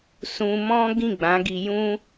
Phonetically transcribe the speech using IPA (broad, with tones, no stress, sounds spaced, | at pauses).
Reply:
s ũ˧ m ɔ̃˦ ɡ ĩ˦˨ ɡ͡b ã˨˦ ɡ i˧ j ũ˦